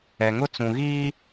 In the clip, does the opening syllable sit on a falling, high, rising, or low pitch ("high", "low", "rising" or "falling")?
low